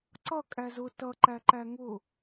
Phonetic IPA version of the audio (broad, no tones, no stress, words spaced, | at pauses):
ǀʌ kʼæzʊ tʌǃæ ǃæŋʊ